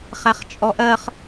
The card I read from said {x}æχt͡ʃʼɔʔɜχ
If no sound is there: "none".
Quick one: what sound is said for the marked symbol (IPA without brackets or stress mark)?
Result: χ